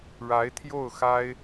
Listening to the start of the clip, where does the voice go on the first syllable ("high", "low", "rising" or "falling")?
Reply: rising